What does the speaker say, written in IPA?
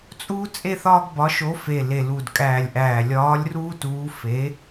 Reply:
t͡sʼ uː˦ t͡sʼ e˦ θ ɒː˦ ɡ b ɒ˨˥ ʃ o˨˥ f e˧˩ l e˧˩ l u˧˩ d kʼ æː˧˩ lʲ ʔ æː˧˩ lʲ ɒː˨˥ lʲ r uː˦ t uː˨˥ f e˨˥

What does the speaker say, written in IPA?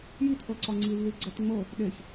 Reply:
j i t ʔ ɤ ǀ ɒ ŋ͡ǀ i lː i ɡ͡ǀ ɛ t ŋ͡m ɤ | ɗ e ç

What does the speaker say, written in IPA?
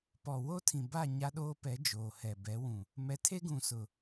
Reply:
p ɔ˨ w o˦ tʰ ĩ˨ b a˦˨ ɲ a˦ ɗ oː˦ p ɛ˨˦ d͡ʒ oː˨ h ɛ˨ b ɛ˨˦ w ũ˨ | m ɛ˨˦ tʰ e˦ ɡ ũ˨ s ʊ˨

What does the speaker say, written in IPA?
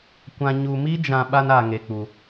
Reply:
kʷ ã˧ ɲ u˧ m i˦ d͡ʒ ã˧ ɓ a˦ n a˧ ŋ e˧ k͡p u˧

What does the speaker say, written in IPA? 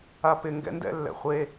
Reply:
a p ɪ ŋ ɡ ɛ̰ n d ɛ̰ lː ɛ̰ χʷ e

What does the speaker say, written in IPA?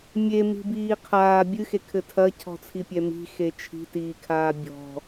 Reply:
mʲ e m i̤ b iː qʰ aː bʲ ɨ x e kʰ ɘ tʰ ɐ cʰ ɔ̤ t͡sʰ i pʲ ɛ m i̤ x e t͡ʃʰ i̤ t iː kʰ aː bʲ ɔ̤

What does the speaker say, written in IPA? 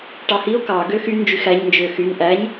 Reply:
ʈ ɑ h i o̯ k ɑ ɡ ø x y n d͡ʒ y x æ ɲ n d͡ʒ ø x y n ʔ æ ɲ

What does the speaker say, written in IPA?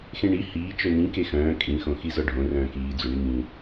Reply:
x ẽ ɳ i h iː t͡ʃ œ n ĩ k e x œ̃ː kʼ ĩ x õ x i z ɒ ɖʱ õ r œ̃ː k iː d͡z o ɳ i ŋ ĩ

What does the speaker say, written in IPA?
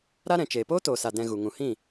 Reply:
ɾ a˦ ɾ ɛ̃˨ t͡ʃ eː˨ p oː˦ t oː˨ s a˨ d ɛ̃˧ ɣ u˨ ŋ ũ˨ h ĩ˦˨

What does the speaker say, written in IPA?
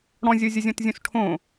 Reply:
ɽ ɔ̃ zʲ o zʲ ʌ zʲ ɔ̃ t zʲ õ s ʈʰ õ

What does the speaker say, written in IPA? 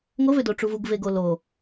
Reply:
ŋ o v ø d o ʈ͡ʂ u v u ɡ v e ɡ o l o

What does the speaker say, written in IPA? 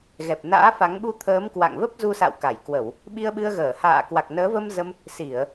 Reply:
ɣ ɛ˨˩ p̚ n a̰ː˧˥ f a˨˦ ŋ ɓ u˧ t̪ʰ əː˨˦ m k w a̰˧˨ ŋ v ə˦˥ p̚ z u˧ s a̰˧˨ w k a˧˩ j k w ə˧˩˨ w | ɓ i˧ ə̯ ɓ ɨ˧ ə̯ ɣ əː˧˩ h a̰ː˧˨ k w a˨˩ k̚ n əː˨˦ v ə˧ m z ə˧ m | s i˧˩˨ ə̯

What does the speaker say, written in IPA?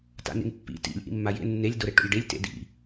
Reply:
t a̰ n ḭ n pː ḭ t ḭ lʲ ʔ ḭ mː a j ḛ nː e lʲ d o ɾ e ʈ o̰ lʲ ɖ e lʲ t ḛ d ḭ

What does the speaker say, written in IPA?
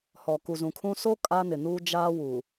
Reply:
h ɔ˨ k u˨ z ũ˨ kʰ ũ˦ s o˦ kʼ a˦ n ɪ˨ n uː˦ d͡ʒ aː˦ w u˨

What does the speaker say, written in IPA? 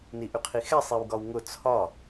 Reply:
n i ʔ y qʰ i x ɛ sˤ i w ɡ ɒ w ŋ ʊ t͡sʰ ɒ

